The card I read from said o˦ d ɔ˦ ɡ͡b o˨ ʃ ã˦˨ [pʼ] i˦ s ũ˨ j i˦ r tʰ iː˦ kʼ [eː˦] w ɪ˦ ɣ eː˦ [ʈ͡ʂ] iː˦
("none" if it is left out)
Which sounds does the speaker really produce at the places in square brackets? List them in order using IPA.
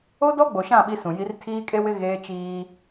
ɓ, e˦, t͡ʃ

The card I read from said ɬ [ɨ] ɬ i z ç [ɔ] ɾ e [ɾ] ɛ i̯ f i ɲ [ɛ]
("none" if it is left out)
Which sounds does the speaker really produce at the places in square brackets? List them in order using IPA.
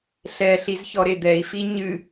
ɛ, ɔ, d̪, ɨ

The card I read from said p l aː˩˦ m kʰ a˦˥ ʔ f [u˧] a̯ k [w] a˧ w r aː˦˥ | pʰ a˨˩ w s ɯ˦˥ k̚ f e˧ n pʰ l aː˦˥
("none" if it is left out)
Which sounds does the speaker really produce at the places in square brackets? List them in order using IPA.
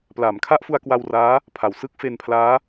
u˧, w

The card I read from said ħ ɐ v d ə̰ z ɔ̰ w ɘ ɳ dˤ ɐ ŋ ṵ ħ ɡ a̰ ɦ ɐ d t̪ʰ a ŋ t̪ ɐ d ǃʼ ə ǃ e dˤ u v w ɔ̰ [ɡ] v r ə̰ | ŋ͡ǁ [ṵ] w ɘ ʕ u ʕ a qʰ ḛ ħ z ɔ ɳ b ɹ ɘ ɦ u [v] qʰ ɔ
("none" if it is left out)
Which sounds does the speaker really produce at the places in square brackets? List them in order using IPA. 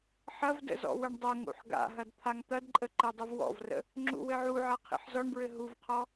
none, ṵ, v

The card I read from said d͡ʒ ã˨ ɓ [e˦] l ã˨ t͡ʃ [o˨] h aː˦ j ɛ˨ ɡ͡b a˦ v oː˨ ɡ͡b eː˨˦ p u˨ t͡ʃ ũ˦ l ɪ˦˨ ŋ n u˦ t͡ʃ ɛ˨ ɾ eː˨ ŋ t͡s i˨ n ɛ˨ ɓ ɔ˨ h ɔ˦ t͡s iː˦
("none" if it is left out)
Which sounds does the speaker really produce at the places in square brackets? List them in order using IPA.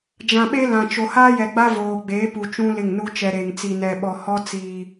e˦, o˨

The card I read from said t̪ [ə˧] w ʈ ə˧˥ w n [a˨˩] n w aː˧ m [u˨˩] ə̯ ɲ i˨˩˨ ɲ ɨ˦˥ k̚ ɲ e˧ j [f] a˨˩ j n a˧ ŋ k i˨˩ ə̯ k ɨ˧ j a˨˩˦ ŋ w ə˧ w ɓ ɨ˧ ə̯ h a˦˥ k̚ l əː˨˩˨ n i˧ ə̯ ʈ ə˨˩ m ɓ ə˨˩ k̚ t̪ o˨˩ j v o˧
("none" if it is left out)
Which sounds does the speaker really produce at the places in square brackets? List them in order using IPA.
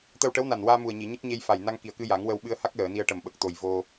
ə˧, a˨˩, u˨˩, f

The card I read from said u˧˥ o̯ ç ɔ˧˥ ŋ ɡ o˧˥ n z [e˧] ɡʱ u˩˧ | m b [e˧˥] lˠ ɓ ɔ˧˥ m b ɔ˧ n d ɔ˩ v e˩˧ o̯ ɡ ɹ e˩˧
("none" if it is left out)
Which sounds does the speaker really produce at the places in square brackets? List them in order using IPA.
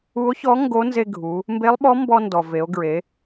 e˧, e˧˥

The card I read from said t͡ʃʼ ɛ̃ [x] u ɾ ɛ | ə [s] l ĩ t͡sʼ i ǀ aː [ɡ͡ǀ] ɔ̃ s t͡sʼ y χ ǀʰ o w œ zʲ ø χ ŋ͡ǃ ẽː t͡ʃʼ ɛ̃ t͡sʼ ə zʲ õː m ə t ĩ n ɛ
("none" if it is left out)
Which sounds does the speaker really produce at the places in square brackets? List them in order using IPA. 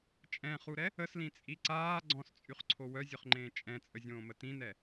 χ, s, ɡ͡ǀ

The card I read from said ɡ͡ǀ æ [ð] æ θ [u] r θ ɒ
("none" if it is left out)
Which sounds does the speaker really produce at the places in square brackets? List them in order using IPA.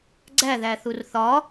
ð, u

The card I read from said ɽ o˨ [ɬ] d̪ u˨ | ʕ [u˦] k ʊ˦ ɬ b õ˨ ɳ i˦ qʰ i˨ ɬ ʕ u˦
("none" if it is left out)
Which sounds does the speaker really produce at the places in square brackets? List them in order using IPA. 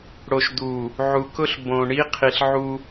ʃ, u˨

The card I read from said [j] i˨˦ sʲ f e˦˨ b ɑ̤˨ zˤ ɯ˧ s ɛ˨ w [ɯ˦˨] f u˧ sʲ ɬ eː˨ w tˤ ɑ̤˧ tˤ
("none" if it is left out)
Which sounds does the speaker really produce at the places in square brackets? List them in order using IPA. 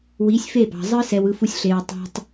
w, ɯ˧

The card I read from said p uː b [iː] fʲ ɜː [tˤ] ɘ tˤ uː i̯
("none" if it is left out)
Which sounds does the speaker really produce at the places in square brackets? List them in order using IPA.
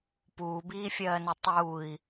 iː, n

